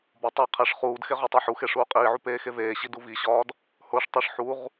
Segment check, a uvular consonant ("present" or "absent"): present